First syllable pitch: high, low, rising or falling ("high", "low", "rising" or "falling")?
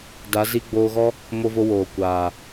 rising